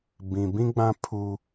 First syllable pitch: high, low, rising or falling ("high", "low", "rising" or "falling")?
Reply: low